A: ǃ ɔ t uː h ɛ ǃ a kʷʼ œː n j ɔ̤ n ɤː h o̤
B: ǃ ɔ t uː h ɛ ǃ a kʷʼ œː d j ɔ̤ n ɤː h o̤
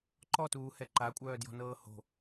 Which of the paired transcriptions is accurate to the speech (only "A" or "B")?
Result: B